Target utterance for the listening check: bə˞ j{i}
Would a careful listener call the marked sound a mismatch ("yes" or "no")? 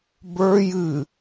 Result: yes